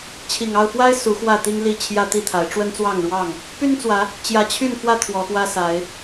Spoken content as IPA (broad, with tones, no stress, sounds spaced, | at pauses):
t͡ɕʰ i˨˩ ŋ ɑ˥˨ ʊ̯ f w a˦ ɪ̯ s u˨˦ x w ä˥˨ t̪ i˦ ŋ l i˥˨ t͡ɕʰ j ä˦ t̪ i˥˨ t̪ʰ a˨˦ ɪ̯ ʈ͡ʂ w ə˦ n t͡s w ɑ˥˨ ŋ ɻ w ɑ˥˨ ŋ | p y˦ n t͡s w ä˨˦ | t͡ɕ j ä˨˦ t͡ɕʰ y˥˨ n f w ä˥˨ t̪ʰ w ɔ˨˦ x w ä˦ s a˨˦ ɪ̯